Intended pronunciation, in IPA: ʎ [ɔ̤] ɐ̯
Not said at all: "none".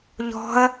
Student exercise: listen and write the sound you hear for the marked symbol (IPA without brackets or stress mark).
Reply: ɔ̤